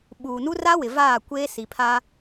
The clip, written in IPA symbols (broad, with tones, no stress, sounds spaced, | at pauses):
ɓ uː˨ n u˦ r a˦ w ɪ˨ v aː˦˨ kʷ eː˦ s i˨ pʰ aː˦